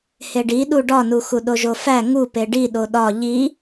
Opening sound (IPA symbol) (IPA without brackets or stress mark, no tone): h